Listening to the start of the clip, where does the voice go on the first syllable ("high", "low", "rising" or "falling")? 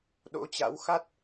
rising